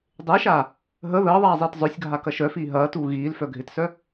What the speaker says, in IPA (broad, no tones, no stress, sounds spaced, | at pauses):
dˤ ɪː ʃ aː | ɦ ə ð əː ðˤ aː zˤ iː t zˤ œ sʲ ɡʱ a k ɐ ʃ œ f iː ɦ ɐː t uː ɣ iː l f œ ɡʱ ɪ t s œ